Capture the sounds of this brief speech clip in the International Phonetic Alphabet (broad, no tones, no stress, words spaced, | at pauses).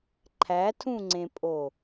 ǃʰætʰũŋ͡ǀẽpʼo